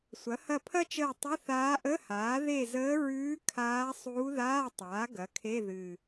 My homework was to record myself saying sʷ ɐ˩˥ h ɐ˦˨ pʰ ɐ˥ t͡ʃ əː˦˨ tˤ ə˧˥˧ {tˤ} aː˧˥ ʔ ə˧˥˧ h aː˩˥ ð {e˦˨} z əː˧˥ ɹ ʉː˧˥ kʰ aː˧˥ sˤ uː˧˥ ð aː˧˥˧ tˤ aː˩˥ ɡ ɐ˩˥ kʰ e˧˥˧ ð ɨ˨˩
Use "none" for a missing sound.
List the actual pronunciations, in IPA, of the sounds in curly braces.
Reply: θ, e˦˨

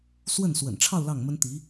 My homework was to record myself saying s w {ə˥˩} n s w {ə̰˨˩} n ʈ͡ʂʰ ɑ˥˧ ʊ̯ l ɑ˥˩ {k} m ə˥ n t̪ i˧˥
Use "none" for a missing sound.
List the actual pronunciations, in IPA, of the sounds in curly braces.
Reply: ə˥˩, ə̰˨˩, ŋ

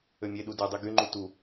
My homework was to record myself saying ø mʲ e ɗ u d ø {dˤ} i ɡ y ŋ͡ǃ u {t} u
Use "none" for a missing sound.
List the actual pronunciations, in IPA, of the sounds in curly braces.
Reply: dˤ, t

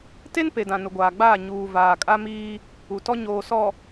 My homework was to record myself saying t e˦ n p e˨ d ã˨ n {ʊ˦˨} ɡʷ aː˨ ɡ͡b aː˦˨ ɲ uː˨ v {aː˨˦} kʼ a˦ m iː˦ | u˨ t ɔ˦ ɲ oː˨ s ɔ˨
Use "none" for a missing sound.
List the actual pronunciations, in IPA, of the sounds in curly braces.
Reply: ʊ˨, aː˨

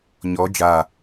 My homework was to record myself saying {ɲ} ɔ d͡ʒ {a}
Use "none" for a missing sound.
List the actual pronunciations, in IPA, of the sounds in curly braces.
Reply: ɲ, a

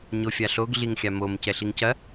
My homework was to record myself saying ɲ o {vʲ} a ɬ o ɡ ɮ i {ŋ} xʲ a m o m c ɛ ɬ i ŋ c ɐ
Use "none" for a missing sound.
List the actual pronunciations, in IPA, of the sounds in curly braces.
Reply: fʲ, ŋ

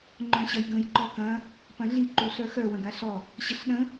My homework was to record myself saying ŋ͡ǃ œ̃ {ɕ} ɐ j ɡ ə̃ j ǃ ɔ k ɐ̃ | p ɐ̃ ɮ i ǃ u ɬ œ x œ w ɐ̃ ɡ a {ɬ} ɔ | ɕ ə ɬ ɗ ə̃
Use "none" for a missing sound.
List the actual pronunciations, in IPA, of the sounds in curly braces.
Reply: ɕ, ɬ

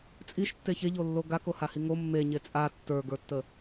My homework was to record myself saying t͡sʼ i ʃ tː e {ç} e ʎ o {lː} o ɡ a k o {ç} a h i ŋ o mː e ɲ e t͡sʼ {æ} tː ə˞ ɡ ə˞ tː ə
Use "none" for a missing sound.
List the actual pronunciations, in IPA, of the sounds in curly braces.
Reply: ç, lː, h, a

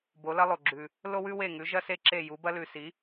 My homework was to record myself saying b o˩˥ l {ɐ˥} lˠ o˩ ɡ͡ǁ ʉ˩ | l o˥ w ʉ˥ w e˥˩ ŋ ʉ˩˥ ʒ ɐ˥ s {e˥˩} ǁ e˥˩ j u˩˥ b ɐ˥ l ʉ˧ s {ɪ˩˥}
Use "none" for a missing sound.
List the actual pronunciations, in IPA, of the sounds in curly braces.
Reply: ɐ˥, e˥˩, i˩˥

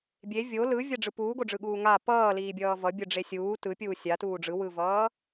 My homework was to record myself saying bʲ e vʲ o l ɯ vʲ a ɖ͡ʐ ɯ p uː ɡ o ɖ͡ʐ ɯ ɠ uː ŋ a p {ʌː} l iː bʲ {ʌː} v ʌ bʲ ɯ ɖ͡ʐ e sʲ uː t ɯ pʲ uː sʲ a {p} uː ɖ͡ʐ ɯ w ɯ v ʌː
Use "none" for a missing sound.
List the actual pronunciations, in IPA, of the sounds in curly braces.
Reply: ʌː, ʌː, t

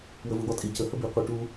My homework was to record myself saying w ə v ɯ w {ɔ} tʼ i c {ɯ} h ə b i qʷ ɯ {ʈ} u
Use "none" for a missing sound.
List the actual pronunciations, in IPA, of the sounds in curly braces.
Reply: ɔ, ə, ʈ

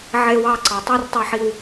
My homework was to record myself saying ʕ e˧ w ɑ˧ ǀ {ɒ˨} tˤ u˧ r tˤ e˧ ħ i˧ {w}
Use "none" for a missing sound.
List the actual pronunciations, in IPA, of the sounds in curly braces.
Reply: ɑ˨, w

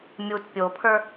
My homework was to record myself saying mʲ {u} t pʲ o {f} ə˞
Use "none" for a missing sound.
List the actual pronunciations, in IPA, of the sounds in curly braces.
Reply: u, pʰ

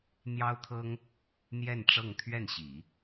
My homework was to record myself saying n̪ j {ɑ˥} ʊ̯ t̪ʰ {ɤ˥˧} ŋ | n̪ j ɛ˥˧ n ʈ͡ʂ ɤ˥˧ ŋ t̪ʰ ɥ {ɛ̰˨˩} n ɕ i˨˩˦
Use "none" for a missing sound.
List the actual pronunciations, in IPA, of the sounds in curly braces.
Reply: ɑ˥, ɤ˥, ɛ˥˩

